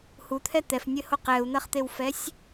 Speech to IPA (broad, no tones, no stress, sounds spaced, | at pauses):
h u t̪ʰ ɛ t̪ ɛ f nʲ ɘ h o q ɛ u̯ n̪ ɐ χ t̪ e w f ɛ sʲ